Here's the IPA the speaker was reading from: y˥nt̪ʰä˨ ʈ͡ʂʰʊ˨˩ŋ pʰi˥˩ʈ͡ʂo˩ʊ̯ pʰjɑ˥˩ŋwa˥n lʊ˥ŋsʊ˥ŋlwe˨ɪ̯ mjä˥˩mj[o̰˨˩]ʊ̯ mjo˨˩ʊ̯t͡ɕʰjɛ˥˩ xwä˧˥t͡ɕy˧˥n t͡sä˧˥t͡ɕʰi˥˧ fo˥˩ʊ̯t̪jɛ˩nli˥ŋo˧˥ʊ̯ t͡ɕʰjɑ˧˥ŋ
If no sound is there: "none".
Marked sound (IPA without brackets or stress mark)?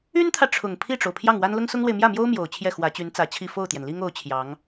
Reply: o˥